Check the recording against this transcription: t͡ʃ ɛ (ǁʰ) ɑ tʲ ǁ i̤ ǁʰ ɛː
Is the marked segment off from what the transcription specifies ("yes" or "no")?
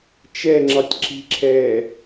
yes